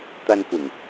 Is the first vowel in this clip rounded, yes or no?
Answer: no